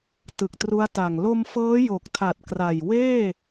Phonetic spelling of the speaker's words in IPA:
t ɯ˨˩ k̚ t r u˦˥ a̯ t a˨˩ ŋ l o˧ m f ɤː˦˥ j o˨˩ k̚ tʰ a˨˩ t̚ k r a˨˩ j w eː˥˩

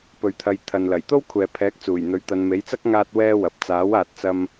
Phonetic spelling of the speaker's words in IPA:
p ɵ˨ ɥ t̪ʰ ɐ˨˧ j t̪ʰ ɐ˨ n l ɐ˨˩ j t̪ o˥ w kʷʰ ɛː˨ pʰ ɛː˨˥ k̚ t͡s uː˨˩ j n̪ ɵ˨˥ ɥ t̪ ɐ˨˧ n m e˨˥ j t͡s ɐ˥ k̚ ŋ aː˥ t̚ w ɛː˥ w ɐ˨ p̚ t͡s aː˨˥ w aː˨ t̚ t͡s ɐ˧ m

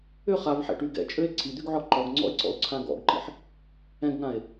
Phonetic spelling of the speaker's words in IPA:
ʏ χ a v ħ ɛ̰ ʈ y ɡ ɛ̰ t͡ʃʼ ø e̯ ǀʰ i d̪ y ɡ ʕ ɔ ǃ ɔ ɡ ŋ͡ǀ ɔ̰ e̯ ǀ ɔ̰ o̯ ǀʰ ã ɡ ɔ̰ ɡ ǃ ḭ ħ | ɛ̃ ɡ ŋ ã e̯

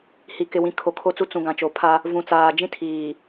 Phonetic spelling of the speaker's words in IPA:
h i˨ k ɪ˨ w ĩ˨ kʰ o˨ kʰ o˦ t͡s u˦ t͡s ũ˨ ɡ ã˨ t͡ʃ o˨ pʰ a˦ | v ũ˨ t͡s aː˨ d͡ʒ ĩ˦ tʰ iː˨

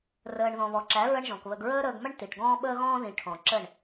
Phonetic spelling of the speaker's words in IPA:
r əː˨ ɳ ð ɔ̃˨ β ɔ˨ ǁ æ˨˦ ɹ ə˦ ɳ ʒ ɔ̃˨ k β ə˧ ɡ ɹ əː˦ ɾ əː˧ ɡ m ə˦ ɳ t i˨ ʈ ɡ ɔ̃ː˦ ɓ əː˦ ɣ ɔ̃ː˦ ð ĩ˨ ʈʰ ɔ̃˨ ǁ ə˦˨ ɳ

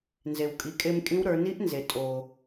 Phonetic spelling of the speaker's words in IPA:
n z e˩ w kʼ i˩˧ kʼ e˧ m kʼ ĩ˧˥ w ɾ ə˞˩˧ n i˧˥ ʔ n z e˩ tʼ o˩

